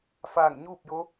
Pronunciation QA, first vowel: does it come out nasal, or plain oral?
oral